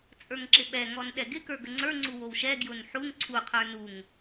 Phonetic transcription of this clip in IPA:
t͡sʼ ə˞ ŋ ǁ ɪ ɓ ɛ ŋ ɔ n ɗ ɛ ɡ ɪ k ə˞ ɡ ə ŋ͡ǀ ə˞ ŋ͡ǀ u w o w ʃ ɛ ɡ j ʊ n ħ u ŋ ǀʰ u qʰ ə˞ n u ŋ

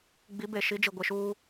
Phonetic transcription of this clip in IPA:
ɡ͡b i˨˦ b e˨ ʃ i˨˦ d͡ʒ i˨ ɡʷ ɪ˨ ʃ uː˦

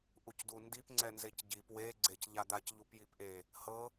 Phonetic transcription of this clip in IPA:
ʔ u c d u n d i p ŋ͡ǀ ɛ n z e c ɟ i p w e ɡ͡ǀ e c ʎ a d̪ a c ʎ u p j i p ʔ e | h ɤ

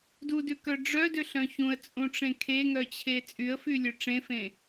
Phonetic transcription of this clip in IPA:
d u d ʉ k œ ɖ͡ʐ œ d ø ɬ œ̃ ç ũ ə̯ t͡sʼ ũ ʈ͡ʂ ẽ kʰ e ŋ œ t͡ɕʰ e t͡sʼ y ə̯ f y lʲ ø ʈ͡ʂ ẽ f ẽ

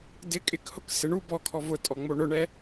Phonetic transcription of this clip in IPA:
d ɪ kʼ ɪ k h ʊ k s ɪ ɳ u b ɔ kʰ ɔ v ʊ tʼ ɔ ŋ͡m o ɳ ʊ ɳ ɛ

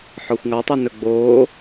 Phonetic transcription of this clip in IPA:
ħ ɔ xʷ ŋ ɑ tˤ ɑ n ɵ ɡ͡b oː

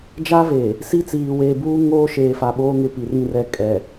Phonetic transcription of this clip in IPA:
d͡ʒ a˦ v e˨ | s i˦ t͡s iː˨ w eː˨ b uː˦ ŋ oː˦ ʃ eː˨ f a˨ ɓ oː˦ ŋ ɪ˨ p i˨ r ĩ˦˨ r ɛ˦˨ kʼ ɛ˨

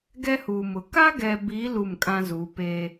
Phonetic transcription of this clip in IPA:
ɡ ɛ˦ h u˨ m ʊ˨ k a˦ ɡ ɛ˨ b i˨˦ l u˦˨ m kʼ ã˦ z u˨˦ p eː˦

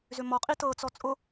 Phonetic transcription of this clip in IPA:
z ʏ m ɔ qʼ i t ɤ t͡s ɔ t͡sʼ ʊ

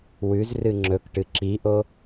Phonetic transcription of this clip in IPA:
w ʉ z r ɨ ŋ͡ǁ ɵ k ʈ ɨ ǁ i ʔ o

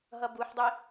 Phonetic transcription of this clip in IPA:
ɦ ʌ b u ħ dˤ i

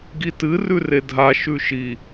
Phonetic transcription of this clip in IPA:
ɡ i t ɨ r ʉ r e dʱ a ʃ ʉ ʃ i

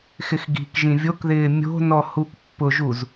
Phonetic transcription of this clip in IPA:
x ɪ x ɡ i̤ k ʒ ĩ vʲ o k ð ɪː mʲ o̤ n ɔ h u k pː ʊ ʒ u z

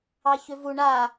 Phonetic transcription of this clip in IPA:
ɑ ç ʏ v u ɳ a

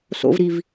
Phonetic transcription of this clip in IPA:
s o̰ v ɾ i v

